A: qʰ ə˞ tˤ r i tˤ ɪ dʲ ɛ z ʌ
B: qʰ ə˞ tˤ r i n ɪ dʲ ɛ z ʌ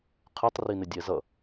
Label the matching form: B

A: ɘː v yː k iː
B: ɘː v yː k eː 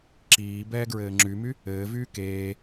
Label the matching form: B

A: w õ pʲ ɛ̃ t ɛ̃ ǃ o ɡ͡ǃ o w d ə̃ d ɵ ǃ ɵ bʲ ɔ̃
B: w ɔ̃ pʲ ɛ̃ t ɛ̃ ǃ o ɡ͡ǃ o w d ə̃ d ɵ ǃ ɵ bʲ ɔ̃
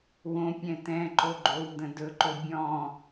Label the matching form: A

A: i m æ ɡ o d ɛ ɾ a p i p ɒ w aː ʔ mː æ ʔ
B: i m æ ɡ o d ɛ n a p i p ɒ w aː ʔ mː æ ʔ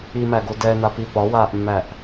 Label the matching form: B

